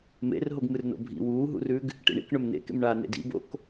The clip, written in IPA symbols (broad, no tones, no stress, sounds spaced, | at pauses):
m ḛ r ɦ o ɡ m ɨ r n o̰ bʱ ḭ w uː ɦ ṵ r ʉ ɡ | ʈ ḭ ɳ ḭ k ɳ ɵ m n ḛ k ḛ m ɳ aː n ḛ d ḭ b o̰ k